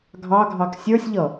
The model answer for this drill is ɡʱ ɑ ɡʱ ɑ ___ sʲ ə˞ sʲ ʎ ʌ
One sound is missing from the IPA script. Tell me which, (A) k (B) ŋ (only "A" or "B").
A